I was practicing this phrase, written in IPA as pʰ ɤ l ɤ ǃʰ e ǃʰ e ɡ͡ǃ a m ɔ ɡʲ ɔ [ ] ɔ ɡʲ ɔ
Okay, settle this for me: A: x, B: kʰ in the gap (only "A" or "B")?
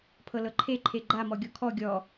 B